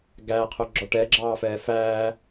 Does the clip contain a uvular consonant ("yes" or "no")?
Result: yes